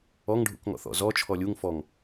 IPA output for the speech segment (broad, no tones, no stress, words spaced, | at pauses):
ɔŋɖʱṵkŋɔ̰ θɔ̰zɔ t͡ʃʰɔlʲuŋ fɔŋ